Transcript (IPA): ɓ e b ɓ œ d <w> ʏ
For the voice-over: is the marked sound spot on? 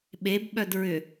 no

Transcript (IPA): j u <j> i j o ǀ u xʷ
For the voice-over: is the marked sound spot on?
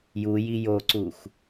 yes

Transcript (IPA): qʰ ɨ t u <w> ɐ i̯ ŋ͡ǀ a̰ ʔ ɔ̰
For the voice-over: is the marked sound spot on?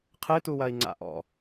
yes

